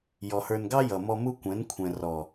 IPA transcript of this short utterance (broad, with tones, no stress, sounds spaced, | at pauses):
j ɔ˨ h ə˞˨ n ɡ ɑ˦ j ʌ˨ m ɔ˦ m u˦ kʷ ɛ̃˨˦ n kʷʰ ɛ̃˨ r ɔ˨